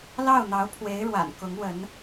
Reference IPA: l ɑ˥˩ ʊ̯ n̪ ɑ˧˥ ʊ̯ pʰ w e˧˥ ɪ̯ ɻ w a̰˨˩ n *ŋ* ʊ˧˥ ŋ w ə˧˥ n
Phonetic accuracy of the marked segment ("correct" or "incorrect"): incorrect